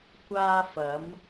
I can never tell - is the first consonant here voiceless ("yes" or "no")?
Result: yes